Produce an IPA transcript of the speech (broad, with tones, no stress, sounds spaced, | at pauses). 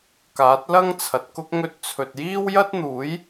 k aː˨˥ t̚ l ɐ˥ ŋ t͡sʰ ɐ˨ t̚ k ʊ˥ k̚ ŋ ɵ˧ t̚ t͡sʰ ɵ˨ t̚ j iː˥ w j ɐ˥ t̚ n̪ uː˨˥ j